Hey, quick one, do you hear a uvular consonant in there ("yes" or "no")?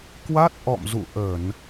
no